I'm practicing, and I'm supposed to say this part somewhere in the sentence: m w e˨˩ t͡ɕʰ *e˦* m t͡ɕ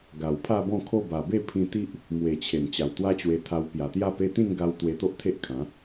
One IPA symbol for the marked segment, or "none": e˨˩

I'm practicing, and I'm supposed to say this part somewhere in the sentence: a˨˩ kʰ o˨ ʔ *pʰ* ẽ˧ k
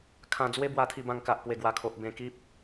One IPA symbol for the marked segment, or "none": b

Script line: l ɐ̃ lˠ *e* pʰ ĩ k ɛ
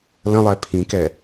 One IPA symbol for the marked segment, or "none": ɛ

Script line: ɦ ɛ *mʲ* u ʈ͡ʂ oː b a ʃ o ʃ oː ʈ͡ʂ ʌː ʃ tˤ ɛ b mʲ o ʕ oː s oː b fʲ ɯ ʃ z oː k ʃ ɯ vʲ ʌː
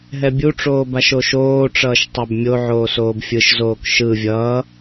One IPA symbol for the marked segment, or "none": bʲ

